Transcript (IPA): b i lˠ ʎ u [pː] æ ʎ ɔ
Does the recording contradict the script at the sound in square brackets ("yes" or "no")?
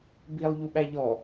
yes